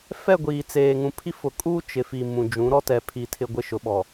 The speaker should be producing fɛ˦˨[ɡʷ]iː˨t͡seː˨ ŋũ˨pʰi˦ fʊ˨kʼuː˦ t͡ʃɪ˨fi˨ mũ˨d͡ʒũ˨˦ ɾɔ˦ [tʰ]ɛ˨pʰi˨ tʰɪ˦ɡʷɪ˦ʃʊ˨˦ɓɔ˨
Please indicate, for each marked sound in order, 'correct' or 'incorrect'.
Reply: correct, incorrect

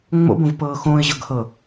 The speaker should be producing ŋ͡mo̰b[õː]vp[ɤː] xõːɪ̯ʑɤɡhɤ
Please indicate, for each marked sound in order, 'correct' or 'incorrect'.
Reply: incorrect, correct

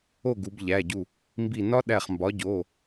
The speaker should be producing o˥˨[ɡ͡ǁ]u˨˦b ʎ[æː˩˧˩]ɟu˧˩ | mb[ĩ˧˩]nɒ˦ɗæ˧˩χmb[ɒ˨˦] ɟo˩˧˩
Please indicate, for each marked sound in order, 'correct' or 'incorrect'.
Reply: incorrect, incorrect, incorrect, correct

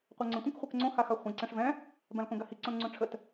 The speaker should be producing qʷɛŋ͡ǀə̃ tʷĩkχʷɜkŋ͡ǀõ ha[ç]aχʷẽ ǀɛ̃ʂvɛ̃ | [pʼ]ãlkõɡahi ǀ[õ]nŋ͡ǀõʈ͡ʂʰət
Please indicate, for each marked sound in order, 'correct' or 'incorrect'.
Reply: incorrect, incorrect, correct

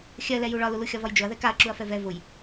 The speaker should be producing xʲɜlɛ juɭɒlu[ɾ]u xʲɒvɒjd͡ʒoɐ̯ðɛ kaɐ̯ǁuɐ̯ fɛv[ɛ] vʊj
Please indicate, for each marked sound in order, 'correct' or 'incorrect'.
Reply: incorrect, correct

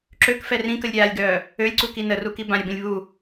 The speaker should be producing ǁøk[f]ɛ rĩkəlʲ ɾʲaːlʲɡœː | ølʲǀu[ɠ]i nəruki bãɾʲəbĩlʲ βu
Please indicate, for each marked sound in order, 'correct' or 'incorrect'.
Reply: correct, incorrect

